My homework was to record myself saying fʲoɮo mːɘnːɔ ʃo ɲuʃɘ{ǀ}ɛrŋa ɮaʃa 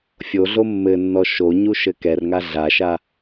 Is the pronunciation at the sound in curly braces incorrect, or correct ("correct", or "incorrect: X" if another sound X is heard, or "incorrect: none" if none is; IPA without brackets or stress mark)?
incorrect: k